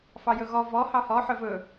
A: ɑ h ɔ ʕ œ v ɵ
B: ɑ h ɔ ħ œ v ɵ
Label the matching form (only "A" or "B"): B